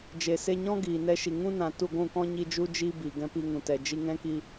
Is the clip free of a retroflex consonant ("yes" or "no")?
yes